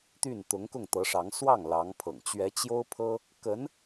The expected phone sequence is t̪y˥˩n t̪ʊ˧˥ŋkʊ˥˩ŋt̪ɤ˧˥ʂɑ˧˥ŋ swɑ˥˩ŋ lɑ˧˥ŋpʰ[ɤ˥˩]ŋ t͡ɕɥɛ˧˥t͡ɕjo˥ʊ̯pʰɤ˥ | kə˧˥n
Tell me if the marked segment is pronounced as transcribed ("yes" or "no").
no